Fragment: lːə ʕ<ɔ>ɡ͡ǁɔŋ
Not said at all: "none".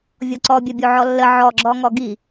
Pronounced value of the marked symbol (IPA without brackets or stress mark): ɔ